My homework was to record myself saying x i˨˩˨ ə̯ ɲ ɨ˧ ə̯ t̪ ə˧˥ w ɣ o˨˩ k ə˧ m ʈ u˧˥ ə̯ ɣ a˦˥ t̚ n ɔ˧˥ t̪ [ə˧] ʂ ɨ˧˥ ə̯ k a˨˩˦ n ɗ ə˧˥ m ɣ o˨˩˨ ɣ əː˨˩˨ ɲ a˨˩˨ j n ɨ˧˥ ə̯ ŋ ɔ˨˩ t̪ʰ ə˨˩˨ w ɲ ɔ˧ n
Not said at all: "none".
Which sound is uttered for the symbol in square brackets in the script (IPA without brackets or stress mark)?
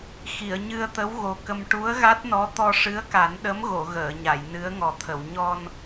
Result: ɔ˧